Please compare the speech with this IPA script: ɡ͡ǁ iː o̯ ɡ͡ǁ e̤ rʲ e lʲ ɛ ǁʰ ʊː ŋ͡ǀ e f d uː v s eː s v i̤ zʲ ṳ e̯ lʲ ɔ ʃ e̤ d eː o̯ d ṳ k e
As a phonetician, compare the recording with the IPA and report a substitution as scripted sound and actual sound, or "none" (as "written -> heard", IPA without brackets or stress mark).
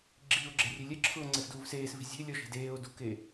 none